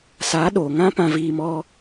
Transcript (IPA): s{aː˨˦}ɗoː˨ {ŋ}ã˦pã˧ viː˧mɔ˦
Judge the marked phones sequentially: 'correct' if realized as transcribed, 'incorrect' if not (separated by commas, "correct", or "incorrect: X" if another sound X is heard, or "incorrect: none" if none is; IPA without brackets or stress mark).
correct, correct